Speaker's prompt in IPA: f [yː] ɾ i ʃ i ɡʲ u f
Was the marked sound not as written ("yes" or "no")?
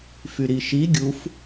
yes